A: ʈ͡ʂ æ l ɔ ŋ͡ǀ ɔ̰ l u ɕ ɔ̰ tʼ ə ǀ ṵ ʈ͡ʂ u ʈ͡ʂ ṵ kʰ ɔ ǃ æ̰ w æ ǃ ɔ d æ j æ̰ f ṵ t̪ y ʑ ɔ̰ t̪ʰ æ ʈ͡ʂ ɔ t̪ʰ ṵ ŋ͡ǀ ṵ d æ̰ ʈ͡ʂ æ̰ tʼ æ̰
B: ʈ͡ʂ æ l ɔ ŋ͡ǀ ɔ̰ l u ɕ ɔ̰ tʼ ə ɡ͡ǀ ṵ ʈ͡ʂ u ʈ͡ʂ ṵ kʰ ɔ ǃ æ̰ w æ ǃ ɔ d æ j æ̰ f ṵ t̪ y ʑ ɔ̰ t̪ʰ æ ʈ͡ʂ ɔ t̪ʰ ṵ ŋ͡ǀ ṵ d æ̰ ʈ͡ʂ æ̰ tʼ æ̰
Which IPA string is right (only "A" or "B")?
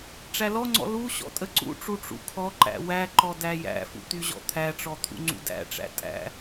A